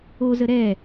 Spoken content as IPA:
ozə ɾɛ

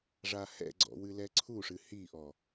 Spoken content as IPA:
ʐahɛ̰ɡ͡ǀɔ̰ wɨlɛǀʰuʂɨ hiʔɔ

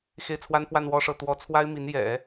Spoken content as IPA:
xe˥˩ɪ̯t͡sʰwa˥n fwa˥˧nwɔ˥˧ʂɤ˥˩ t̪wɔ˧˥t͡sʰwa˥ɪ̯mi˧˥n jɛ̰˨˩˦

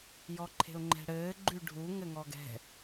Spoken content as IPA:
jɔǃʰe̤ʊ̯ŋ͡ǃɛ̤ɽɘː ɡ͡ǃʉɖʱu ŋɘŋɔɡɛ̤

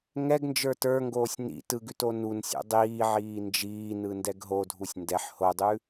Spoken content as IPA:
ŋɛɡnd͡ʒə˞ tə˞ŋɡoːsʲ nḭ tɯɡʉto nunsʲo̰ dˤiːʕiː nd͡ʒiːnɯndɛɡ ɦodʱusʲ ndɛħ hodˤʉ

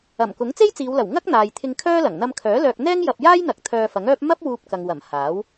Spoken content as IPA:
ɐ˨˩m kʊ˨˥ŋt͡se˥jt͡siː˨˧wlɐ˨˩w ŋɐ˥k̚n̪aː˨jt̪ʰɪ˧ŋ kʰœː˥lɐ˨˩ŋ n̪ɐ˧mkʰœː˨˥ lœː˧k̚ n̪ɛː˥ŋ jɐ˧p̚jaː˥jn̪ɐ˨˥k̚ t̪ʰœː˧fɐ˨˥ŋœː˥p̚ mɐ˥p̚ wuː˧p̚ kɐ˨ŋwɐ˨˩m haː˨˥w

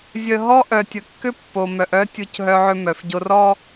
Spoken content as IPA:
zʲə˨ ɦɔ˦ ʔœ˨tʲə˨kːʏ˦ pːo˨mœ˨ʔœ˦tʲu˨c ɦœ˦ʕʏ˦mœ˨fɟo˦r ɔ˦

